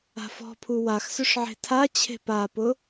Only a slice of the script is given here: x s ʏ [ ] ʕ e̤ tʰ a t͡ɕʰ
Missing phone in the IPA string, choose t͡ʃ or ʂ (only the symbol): ʂ